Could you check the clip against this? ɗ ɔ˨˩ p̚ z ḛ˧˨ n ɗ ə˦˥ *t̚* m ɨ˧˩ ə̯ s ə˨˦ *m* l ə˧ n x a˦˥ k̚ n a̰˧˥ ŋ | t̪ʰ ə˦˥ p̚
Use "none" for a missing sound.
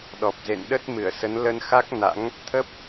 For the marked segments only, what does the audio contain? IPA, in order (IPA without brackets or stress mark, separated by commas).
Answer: t̚, n